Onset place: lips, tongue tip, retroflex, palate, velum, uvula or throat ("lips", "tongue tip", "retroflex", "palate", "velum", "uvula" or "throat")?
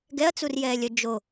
velum